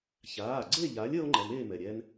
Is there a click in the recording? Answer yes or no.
yes